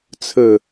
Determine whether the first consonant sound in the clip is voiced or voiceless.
voiceless